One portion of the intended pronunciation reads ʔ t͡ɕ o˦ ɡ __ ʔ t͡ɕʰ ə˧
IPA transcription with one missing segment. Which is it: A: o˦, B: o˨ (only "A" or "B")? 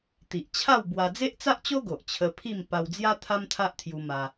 B